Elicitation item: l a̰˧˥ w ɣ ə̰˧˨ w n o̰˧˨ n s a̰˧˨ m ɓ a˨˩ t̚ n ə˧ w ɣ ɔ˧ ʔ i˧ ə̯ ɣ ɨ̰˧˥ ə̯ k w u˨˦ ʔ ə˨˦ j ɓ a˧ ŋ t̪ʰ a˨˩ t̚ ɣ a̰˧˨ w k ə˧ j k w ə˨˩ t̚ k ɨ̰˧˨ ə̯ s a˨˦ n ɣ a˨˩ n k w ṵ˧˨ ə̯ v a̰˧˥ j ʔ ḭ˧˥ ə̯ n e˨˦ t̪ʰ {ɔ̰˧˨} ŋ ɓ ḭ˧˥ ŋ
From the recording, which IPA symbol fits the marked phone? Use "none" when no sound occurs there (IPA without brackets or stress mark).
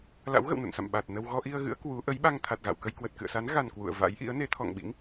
ɔ̰˧˨